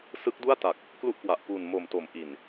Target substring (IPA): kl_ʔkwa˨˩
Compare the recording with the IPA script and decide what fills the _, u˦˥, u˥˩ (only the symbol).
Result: u˥˩